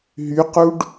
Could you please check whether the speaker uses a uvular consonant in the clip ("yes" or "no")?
yes